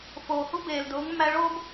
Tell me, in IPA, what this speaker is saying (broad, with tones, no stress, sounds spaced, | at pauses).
f oː˩ h u˦ b eː˩ l d ʊː˩˥ ŋ mː æ˦ ɭ oː˦ b